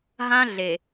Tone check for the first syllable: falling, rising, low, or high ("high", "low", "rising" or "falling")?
high